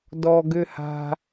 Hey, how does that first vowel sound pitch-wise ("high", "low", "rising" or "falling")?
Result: low